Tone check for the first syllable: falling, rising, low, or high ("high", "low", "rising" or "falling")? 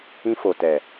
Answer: high